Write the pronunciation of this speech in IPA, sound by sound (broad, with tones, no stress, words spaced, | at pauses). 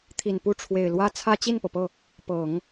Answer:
t̪ʰi˨˩npu˥˩ʈ͡ʂʰwe˨˩ɪ̯ lwä˥t͡sʰä˥ t͡ɕi˥˩npɤ˩pɤ˥˩ | pɤ˨˩˦ŋ